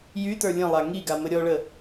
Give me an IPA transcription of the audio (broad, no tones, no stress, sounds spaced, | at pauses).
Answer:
j y t ə˞ lʲ ə̃ lˠ a ŋ i ɡ a m ə ɾʲ ɔ ɭ ə